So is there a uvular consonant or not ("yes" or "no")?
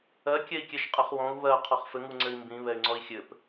yes